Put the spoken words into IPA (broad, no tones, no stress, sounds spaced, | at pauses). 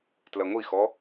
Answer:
t l ɐ ŋʷ i x ɔ